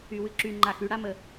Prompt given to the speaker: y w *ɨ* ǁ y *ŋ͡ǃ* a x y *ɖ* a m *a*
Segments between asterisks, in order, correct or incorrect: correct, correct, incorrect: ɽ, incorrect: ə

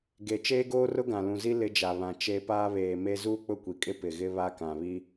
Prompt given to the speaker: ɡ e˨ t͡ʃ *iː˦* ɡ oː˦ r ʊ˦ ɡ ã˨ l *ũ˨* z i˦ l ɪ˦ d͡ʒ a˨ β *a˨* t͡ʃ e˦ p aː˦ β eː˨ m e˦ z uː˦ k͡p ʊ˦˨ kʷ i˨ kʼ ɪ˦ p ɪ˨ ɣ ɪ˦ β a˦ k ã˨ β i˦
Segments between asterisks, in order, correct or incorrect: incorrect: eː˦, correct, incorrect: ã˨

